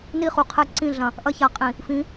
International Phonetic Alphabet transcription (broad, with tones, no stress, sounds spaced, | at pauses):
n i˦ χ u˨ qʰ ɛ˦ ǀ ĩ˦˨ ɮ ɐ̃˨ | ʔ ɐ˦ ç a˨ qʼ ĩ˨ | f ĩ˨˦